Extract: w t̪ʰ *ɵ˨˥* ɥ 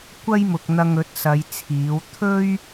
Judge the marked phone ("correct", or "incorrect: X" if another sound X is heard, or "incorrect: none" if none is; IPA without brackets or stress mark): incorrect: ɵ˥